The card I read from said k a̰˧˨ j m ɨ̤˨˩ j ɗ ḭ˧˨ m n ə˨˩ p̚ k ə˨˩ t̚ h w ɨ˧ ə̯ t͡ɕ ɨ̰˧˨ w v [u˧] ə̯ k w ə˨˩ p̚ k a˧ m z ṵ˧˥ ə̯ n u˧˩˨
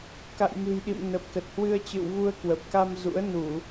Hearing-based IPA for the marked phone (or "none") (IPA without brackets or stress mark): u˧